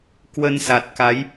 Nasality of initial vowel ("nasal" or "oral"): oral